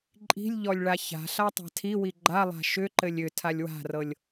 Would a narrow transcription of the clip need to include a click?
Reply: yes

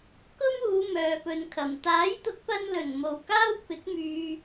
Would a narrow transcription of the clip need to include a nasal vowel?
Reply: no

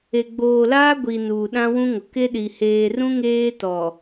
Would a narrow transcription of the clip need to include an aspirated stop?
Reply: no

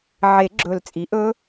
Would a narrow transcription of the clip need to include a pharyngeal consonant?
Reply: yes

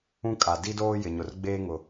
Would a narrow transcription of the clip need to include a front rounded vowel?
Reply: no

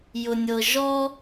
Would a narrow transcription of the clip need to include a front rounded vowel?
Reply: no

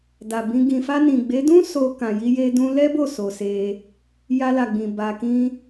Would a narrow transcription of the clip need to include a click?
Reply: no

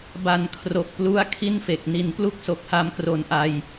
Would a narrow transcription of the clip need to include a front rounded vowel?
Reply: no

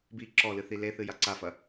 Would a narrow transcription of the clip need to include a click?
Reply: yes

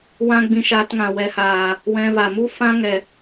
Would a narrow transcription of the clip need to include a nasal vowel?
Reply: yes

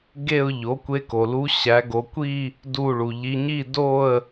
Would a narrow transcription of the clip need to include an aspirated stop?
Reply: no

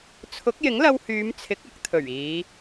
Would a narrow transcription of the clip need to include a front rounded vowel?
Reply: yes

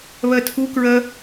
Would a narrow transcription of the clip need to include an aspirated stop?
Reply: yes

